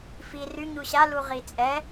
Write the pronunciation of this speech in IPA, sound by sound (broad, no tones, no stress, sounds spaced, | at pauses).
f i r y ɲ u ɕ a l u ʁ i t͡sʼ ɛ